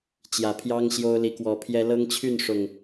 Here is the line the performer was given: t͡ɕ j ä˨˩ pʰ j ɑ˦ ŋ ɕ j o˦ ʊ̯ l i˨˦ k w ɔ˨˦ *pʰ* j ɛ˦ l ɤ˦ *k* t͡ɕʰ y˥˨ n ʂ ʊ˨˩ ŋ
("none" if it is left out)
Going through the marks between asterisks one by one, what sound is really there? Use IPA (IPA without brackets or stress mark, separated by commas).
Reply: pʰ, ŋ